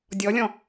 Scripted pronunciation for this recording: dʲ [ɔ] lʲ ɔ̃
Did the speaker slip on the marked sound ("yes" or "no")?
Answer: no